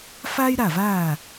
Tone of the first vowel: high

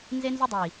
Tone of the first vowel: high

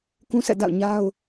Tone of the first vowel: high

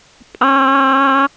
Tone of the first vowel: high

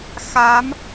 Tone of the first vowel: rising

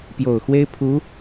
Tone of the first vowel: low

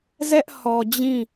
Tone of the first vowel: high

